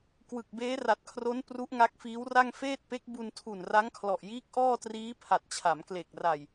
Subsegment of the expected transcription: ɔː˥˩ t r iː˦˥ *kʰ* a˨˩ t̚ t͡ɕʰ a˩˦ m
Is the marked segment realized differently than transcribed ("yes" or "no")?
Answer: yes